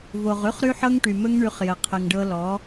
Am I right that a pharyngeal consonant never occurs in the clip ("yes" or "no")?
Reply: no